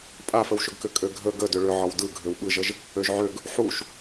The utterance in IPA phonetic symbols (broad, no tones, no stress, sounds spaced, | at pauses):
pʼ a f ə w ʃ ʏ ɡ k ʏ kʼ ø ɡʱ ə ɡ ə d ʏ ɭ ʏ ʕ ɒ w d ɯ ɡʱ ø w ɓ ɯ ʒ ə ʒ | ø ʒ ʕ ø ɡ | ħ u ʃ